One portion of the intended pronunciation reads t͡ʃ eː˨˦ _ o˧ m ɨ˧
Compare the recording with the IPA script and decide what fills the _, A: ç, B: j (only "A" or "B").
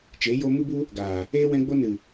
B